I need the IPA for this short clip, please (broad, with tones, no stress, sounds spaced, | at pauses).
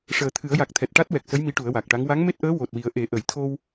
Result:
ʂ əː˨˩ t̪ʰ ɨ˨˩˦ ə̯ j a˨˩ k̚ t̪ʰ ɛ˨˩ t̚ ʈ a˦˥ t̚ w ɛ˨˩ k̚ s ə˧˥ j m i˧˥ ʈ u˨˩˦ ə̯ w a˨˩ k̚ ʈ a˧˥ ŋ w a˧˥ ŋ m e˦˥ t̚ ʔ əː˧˥ w o˨˩ t̚ w i˨˩˦ ə̯ ʔ e˨˩˦ ʔ ə˨˩˨ j t̪ʰ o˧ w